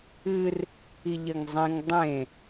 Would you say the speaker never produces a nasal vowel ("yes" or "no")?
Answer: no